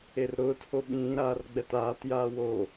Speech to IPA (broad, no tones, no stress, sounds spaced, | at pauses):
e r ɾ ʊː t h o ɓ ĩː ɾ aː r ɡ͡b ɛ t aː t j aː w o